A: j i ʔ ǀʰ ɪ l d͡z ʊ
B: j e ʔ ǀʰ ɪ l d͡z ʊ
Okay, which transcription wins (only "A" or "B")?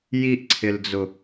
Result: A